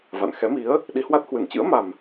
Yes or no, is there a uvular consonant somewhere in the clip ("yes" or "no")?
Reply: no